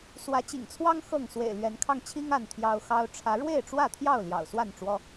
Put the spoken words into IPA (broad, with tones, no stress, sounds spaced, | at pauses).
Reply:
s w ä˨˦ t͡ɕ ḭ˨˩ ŋ t͡sʰ w ɑ˦ ŋ x ɤ˥˨ ŋ s w ḛ˨˩ ɪ̯ l ɥ ɛ˨˦ n kʰ ɑ˧ ŋ t͡ɕʰ i˦ ŋ a˥˨ n t̪ʰ j ɑ˦ ʊ̯ x ɑ˦ ʊ̯ ʈ͡ʂʰ ä˨˦ ɻ w e˥˨ ɪ̯ ʈ͡ʂ w ä˥˨ t̪ʰ j ɑ˥˨ ʊ̯ l j ɑ̰˨˩ ʊ̯ s w a˥˨ n ʈ͡ʂ w ɔ˦